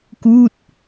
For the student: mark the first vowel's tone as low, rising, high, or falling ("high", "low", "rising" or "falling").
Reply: falling